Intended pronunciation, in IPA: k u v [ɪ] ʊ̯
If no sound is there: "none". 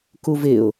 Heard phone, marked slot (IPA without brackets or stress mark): ɪ